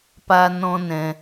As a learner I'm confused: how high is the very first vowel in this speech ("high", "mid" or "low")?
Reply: low